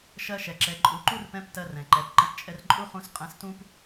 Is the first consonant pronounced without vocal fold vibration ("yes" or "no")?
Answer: yes